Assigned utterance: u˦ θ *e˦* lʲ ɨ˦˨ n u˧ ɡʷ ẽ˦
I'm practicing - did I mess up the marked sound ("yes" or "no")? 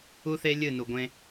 no